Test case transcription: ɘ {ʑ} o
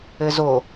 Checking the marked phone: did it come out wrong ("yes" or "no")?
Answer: yes